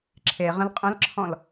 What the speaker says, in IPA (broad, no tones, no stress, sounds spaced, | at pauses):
ǁʰ e ʁ ə̃ l qʼ ə̃ l ǁʰ ɔ̃ l